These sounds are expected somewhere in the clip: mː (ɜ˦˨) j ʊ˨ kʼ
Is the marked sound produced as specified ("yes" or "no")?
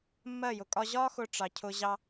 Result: yes